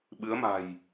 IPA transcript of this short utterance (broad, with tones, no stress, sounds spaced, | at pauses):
ɓ ɨ˨˦ ə̯ m a̤˨˩ j